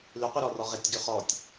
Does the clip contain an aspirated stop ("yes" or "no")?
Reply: no